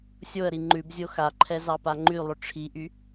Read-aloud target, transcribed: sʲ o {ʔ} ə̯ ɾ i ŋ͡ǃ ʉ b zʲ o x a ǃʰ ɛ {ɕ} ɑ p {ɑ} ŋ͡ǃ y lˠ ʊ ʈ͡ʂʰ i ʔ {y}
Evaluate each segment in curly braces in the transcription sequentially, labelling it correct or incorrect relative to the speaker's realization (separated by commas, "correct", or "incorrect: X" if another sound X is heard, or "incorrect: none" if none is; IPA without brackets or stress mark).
incorrect: none, incorrect: z, incorrect: a, correct